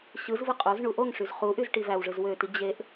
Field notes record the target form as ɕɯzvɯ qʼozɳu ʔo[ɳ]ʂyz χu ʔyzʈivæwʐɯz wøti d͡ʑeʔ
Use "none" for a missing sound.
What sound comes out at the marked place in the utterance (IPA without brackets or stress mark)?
ŋ